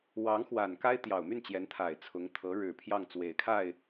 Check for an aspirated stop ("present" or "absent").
present